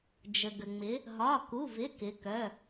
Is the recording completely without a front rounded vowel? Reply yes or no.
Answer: no